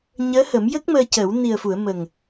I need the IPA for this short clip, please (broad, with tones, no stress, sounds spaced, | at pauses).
ɲ əː˧˥ h ə˨˩˦ m j ə˦˥ k̚ m əː˧ c ə˨˩˦ w n i˨˩ ə̯ f u˨˩˨ ə̯ m ə˨˩ ŋ